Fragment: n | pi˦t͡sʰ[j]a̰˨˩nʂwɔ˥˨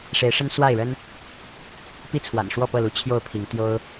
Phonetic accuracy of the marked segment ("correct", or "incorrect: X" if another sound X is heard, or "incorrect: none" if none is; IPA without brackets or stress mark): incorrect: w